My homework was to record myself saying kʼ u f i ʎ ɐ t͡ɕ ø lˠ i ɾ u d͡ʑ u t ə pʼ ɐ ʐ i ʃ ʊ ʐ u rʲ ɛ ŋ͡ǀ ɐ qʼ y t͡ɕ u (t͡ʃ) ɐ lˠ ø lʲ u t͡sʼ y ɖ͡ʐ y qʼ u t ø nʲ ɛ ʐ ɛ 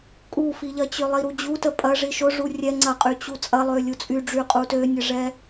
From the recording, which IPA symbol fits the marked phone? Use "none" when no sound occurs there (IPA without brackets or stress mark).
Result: t͡sʼ